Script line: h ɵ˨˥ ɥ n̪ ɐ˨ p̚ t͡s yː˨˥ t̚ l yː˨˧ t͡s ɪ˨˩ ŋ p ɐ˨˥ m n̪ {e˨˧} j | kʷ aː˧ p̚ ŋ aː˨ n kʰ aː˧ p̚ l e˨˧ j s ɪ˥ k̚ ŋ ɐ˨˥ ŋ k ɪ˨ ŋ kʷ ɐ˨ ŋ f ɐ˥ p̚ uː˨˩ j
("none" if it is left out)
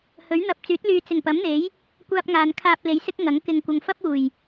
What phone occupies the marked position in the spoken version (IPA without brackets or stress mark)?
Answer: e˨˥